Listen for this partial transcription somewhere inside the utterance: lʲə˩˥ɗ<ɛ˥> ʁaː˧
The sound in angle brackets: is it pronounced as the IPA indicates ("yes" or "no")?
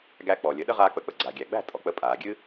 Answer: no